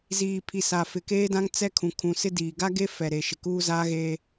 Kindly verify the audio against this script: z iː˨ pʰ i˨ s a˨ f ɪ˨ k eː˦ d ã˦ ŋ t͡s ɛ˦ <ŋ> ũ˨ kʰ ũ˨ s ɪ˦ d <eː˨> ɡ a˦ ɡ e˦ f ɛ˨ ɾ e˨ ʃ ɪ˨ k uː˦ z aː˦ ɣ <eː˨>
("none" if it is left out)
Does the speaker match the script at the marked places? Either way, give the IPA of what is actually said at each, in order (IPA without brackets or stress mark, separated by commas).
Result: kʰ, iː˨, eː˦